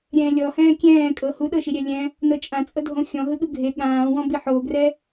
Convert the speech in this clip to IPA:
ɾʲ ɛ̃ː lʲ ɔ h ɛ̃ː kʲ ɛ̃ː kʼ ɤ h u ɗ ɤ ʃ i ɾʲ ɛ lʲ ɛ̃ | n ɤ t͡ʃʼ ã t͡sʼ ɤ dʱ õ xʲ ɔ̃ ɦ ɯ ɠ ɯ ɡʱ e ɠ ãː w ɔ̃ b i ħ oː ɡ r ɛ

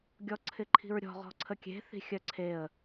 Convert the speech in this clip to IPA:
ɡʲ ɔ ǀʰ ɪ ǃʰ i̤ ɹ ɾʲ ɔ̤ ʁ ɔ̤ ǀʰ ə kʲ e̤ θ i̤ xʲ œ ǀʰ e ə̯

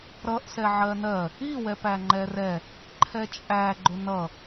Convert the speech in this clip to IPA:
ɾ ʌ ʔ s ɛ ʕ ɜ n ɜ | i w ɛ p æ ŋ͡ǃ ɛ r ɛ | ǃʰ ɛ t͡ʃʼ æ ɡ͡ǃ ʊ n ʌ

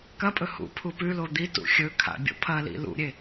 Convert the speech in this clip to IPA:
k ɐ pʼ ɵ h ṵ pʰ u p ʉ l o d̪ i t ṵ xʲ ɵ kʰ a̰ bʲ o̰ pʰ ɐ l ḭ l ṵ ɾʲ e

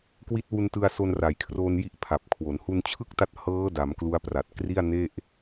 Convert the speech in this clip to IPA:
k w i˦˥ t̚ w u˧ n t ɯ˧ a̯ s o˧ n r a˨˩ j kʰ r oː˧ n j i˥˩ ʔ pʰ a˨˩ p̚ kʰ w o˩˦ n h u˧ n t͡ɕʰ ɯ˥˩ k̚ t a˦˥ t̚ h ɤː˦˥ d a˩˦ m k l u˦˥ a̯ p r a˨˩ t̚ k r i˥˩ a̯ n e˥˩ ʔ

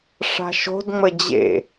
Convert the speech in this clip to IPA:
ʂ a̤ ʃ o̤ d ŋ͡m ə d͡ʑ ḛ

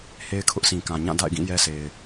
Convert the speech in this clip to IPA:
h e˦ ɪ̯ kʰ ʊ˦ ʔ sʰ ĩ˨ k ã˨ ɲ ã˦˨ d a̰˦˨ ɪ̯ ɡ ĩ˦˨ j ɛ˦ s e˨ ɪ̯

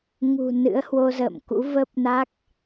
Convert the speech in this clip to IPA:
ŋ ṳ˨˩ n ɨ̰˧˥ ə̯ h w o˧ z ə̰ː˧˨ m k ṵ˧˥ v ə˦˥ p̚ n a˦˥ k̚

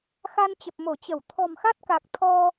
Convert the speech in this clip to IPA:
x a˧ n t͡ɕ ə˨˩ p̚ m o˧˩ t͡ɕ ə˧˩ w t̪ʰ ɔ̤˨˩ m x a˦˥ t̚ k a˨˩ k̚ t̪ʰ ɔ˧

